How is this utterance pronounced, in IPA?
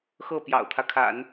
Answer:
x ɤ˥˩ p j ɑ̰˨˩ ʊ̯ t̪ʰ ä˦ kʰ a̰˨˩˦ n

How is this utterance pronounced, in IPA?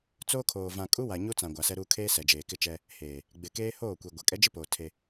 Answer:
t͡s oː˦ kʰ oː˨ v ã˨ kʼ u˦ w a˨ ɲ u˦ t͡s ã˨ ɡʷ a˨ s ɛ˦ ɾ uː˦ kʰ eː˦ s ɛ˨ d͡ʒ eː˨ k ɪ˦ t͡ʃ ɛ˦ | h eː˨ | ɡ͡b ɪ˨ k eː˦ h oː˦˨ kʷ i˨ ɡʷ ɛ˨ kʼ ɛ˦ d͡ʒ ɪ˦ p oː˨ tʰ e˦

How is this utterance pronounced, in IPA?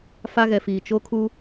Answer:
f a˦ ɣ ɛ˨ f iː˨ t͡ʃ o˦ kʰ u˦

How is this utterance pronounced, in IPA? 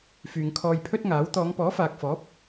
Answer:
f yː˨ ŋ kʰ ɔː˧ j pʰ ɵ˥ t̚ ŋ aː˨˥ w t̪ ɔː˨˧ ŋ p ɔː˨˥ f aː˨ k̚ f ɔː˨˥ p̚

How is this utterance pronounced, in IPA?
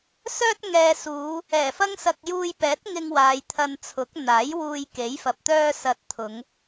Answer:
s œː˥ t̚ ŋ ɛː˨ s uː˨˧ | ɛː˨˩ f ɐ˥ ŋ s ɐ˧ k̚ j uː˧ j p ɛː˨˥ t̚ ŋ ɪ˧ ŋ w aː˨˧ j t̪ʰ ɐ˧ n t͡sʰ ʊ˨˥ k̚ n̪ aː˨˥ j w uː˧ j k e˨˥ j f ɐ˨ p̚ t̪ œː˥ s ɐ˧ t̚ t̪ʰ ʊ˨˧ ŋ

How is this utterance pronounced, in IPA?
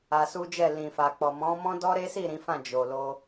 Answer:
a˧ s u˦ d͡ʒ ɛ˦˨ l ĩ˨ f a˨ k͡p ɔ˨ m ɔ̃˨˦ m ɔ̃˦ d ɔ˦ ɾ e˦ s i˦˨ ɾ ĩ˨˦ f ã˦˨ d͡ʒ o˨ l o˧

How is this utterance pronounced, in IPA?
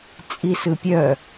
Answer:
t͡sʼ i s ɯ pʲ œ

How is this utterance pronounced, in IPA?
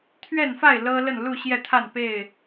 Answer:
t̪ʰ ɥ ɛ˥˨ n f a˥˨ ɪ̯ l ɤ˦ l ə˥˨ n l u˥˨ ɕ j ɛ˥˨ t̪ʰ a˥˨ n p e˥˨ ɪ̯

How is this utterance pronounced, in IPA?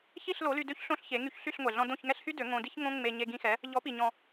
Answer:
ç i˥˩ ɬ l o˩˥ l y˧ d ø˥ ç ɬ õ˥ ɬ ç e˩˥ ŋ y˧ ç ɬ y˥˩ ɬ ŋʷ ɛ˩ ɮ ɔ̃˧ d õ˥˩ ç ŋ ɛ˥ ɬ h y˥ d ø˩˥ ŋ õ˧ d i˥ ç ŋ õ˥ ŋ͡m e˧ ɲ e˧ ɡ ĩ˧ x ɛ˩˥ | ʎ ɔ˩˥ p i˩ ɲ ɔ̃˩

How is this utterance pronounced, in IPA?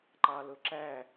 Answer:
ǃ ɑ l ʊ ǁ æ

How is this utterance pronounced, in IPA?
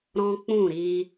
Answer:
ɾ ɔ̃˦ k͡p ũ˦˨ ɾ i˧

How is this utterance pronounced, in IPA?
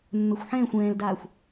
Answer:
mː ɛ xʷ ħ ɛ̃ː xʷ ɛ̃ː l d aː xʷ

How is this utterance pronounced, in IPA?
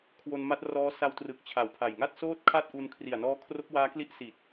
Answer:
kʰ w o˧ n m a˦˥ t̚ r ɔː˦˥ s a˧ w t r ɯ˨˩ k̚ t͡ɕʰ a˨˩ w pʰ a˨˩ j ŋ a˥˩ t̚ s oː˥˩ t̚ kʰ a˥˩ t̚ ʔ u˧ n kʰ r i˨˩ a̯ n ɔː˦˥ kʰ r o˦˥ k̚ w aː˦˥ k l i˦˥ ʔ s i˨˩ t̚

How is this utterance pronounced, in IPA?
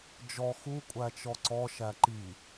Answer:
d͡ʒ ɔ x u kʷʼ æ t͡ʃ ɔ ǀ ɔ ʃ æ ǃ i

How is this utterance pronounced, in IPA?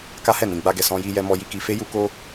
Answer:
k a˦ h ɛ˦˨ n ĩ˨ ɡ͡b a˧ ɡ ɛ˨ s ɔ̃˧ j i˧ j ɛ˧ m ɔ˧ j i˧ k i˧ f e˦ j u˦ k o˦

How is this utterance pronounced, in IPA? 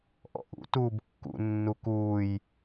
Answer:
ʔ ɔ̰ ʔ ṵ t uː b kː ṵ nː u k uː j

